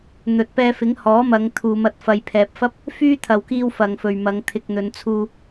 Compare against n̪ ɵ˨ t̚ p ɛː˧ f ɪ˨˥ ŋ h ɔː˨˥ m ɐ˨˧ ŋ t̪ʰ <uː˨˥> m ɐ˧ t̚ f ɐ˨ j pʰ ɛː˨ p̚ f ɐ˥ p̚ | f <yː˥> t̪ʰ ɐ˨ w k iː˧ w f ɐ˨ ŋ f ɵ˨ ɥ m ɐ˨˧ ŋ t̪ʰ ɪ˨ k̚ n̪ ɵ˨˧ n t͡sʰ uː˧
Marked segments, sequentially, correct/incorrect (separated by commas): incorrect, correct